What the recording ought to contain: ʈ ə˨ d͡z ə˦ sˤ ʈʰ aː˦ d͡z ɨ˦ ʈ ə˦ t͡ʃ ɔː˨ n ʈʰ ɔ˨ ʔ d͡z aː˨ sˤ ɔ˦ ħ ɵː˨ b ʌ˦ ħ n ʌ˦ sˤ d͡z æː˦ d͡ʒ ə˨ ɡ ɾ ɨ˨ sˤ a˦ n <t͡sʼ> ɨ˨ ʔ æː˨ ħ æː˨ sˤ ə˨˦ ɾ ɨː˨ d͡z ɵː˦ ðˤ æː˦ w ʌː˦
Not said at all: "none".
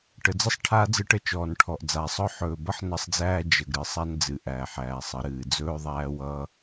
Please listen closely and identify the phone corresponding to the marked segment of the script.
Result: d͡z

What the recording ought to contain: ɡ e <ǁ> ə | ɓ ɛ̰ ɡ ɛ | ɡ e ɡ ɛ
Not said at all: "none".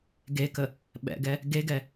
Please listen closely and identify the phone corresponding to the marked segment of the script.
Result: k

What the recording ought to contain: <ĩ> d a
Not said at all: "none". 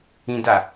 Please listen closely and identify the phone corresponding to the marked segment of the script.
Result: ĩ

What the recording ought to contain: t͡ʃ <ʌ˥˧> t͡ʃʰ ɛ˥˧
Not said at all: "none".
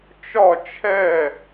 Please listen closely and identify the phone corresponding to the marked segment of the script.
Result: ɒ˥˧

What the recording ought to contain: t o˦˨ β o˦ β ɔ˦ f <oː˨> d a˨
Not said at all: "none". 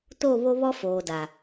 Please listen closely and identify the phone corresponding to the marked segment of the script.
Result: oː˨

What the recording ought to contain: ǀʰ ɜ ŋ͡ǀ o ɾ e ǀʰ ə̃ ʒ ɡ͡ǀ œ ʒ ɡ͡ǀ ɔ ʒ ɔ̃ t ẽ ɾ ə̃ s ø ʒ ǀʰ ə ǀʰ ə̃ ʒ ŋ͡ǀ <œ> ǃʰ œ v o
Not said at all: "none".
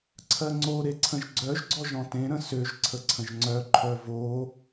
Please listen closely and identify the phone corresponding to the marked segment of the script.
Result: œ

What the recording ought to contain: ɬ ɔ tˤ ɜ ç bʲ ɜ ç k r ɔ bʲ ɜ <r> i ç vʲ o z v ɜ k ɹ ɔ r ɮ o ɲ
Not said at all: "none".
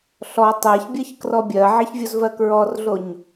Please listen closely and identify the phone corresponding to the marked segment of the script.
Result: ʕ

